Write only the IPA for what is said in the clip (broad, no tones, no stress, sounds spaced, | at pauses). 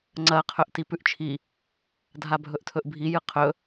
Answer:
ŋ͡ǀ ɐ qʰ ɵ ʔ t i p ʉ ʔ t͡ʃʰ i | dʱ a bʱ ɵ ʔ tʰ ɵ ʔ bʱ i j ɨ qʰ ɵ